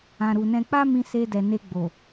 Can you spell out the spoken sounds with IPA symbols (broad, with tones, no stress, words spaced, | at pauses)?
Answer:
ã˨ɾu˨nɛ̃˧ k͡pa˦mĩ˧ se˧dɛ˨ ne˧ɡ͡bo˨